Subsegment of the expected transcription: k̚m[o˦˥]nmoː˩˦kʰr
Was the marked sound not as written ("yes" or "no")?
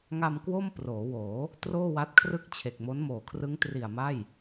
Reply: no